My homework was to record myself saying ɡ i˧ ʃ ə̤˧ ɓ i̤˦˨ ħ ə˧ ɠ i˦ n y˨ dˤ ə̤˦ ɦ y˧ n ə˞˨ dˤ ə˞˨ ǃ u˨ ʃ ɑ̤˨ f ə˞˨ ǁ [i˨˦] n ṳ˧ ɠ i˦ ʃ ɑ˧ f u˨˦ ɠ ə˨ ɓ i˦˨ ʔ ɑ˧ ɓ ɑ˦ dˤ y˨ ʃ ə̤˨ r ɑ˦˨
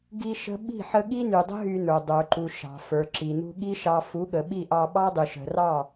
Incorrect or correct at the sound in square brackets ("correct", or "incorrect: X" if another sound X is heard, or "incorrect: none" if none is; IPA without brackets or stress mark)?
incorrect: i˨